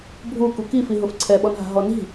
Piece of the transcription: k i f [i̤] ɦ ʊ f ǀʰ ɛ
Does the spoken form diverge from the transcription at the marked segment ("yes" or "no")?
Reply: yes